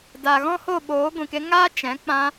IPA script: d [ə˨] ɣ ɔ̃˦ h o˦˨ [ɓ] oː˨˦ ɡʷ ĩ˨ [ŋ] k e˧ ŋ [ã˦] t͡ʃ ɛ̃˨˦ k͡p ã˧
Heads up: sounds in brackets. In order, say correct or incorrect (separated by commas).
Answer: incorrect, correct, incorrect, incorrect